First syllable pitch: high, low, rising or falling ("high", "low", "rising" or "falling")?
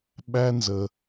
high